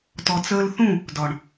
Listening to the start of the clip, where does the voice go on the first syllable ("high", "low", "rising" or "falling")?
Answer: low